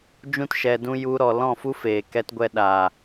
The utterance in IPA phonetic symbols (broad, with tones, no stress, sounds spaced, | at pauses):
d͡ʒ ũ˦ t ʃ ɛ˧ d ũ˦ j u˧ ɾ ɔ˨ l ɔ̃˦˨ f u˦ f eː˨ k ɛ˧ t ɡʷ ɛ˨ ɗ a˨